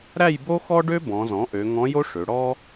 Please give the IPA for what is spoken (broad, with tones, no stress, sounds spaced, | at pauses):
ɾ æ˥˧ j b o˥ x ɔ˥ ɖ ø˥ b ɔ̃˩˧ z ɔ̃˩˥ ʔ ø˩˧ ŋ ɔ̃˧˥ j o˥ ʂ ø˩˧ ɽ ɔ˥